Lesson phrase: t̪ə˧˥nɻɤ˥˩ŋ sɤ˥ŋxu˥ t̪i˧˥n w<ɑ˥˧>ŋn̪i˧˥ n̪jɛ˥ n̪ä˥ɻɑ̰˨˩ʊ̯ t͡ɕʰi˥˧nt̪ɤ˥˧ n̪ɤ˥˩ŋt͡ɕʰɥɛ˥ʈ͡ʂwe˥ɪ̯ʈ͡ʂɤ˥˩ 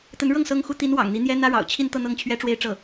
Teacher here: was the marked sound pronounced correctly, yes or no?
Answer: no